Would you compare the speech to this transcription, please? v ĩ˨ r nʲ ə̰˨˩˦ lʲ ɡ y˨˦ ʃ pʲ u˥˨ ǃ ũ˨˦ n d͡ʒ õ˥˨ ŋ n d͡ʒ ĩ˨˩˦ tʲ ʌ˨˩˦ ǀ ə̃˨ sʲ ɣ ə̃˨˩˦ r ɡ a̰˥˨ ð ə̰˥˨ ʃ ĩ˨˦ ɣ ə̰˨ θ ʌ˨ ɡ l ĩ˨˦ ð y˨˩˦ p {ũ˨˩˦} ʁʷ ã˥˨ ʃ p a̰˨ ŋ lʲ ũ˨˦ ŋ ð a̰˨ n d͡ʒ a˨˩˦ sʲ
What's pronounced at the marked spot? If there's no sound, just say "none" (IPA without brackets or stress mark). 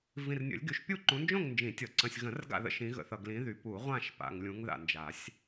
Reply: u˨˩˦